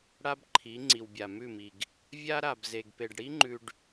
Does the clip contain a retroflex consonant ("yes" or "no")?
yes